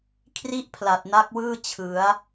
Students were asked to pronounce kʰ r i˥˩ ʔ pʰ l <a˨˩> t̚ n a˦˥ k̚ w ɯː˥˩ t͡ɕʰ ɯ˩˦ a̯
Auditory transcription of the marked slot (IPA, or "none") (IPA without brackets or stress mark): a˨˩